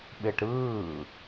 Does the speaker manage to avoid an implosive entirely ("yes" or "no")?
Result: no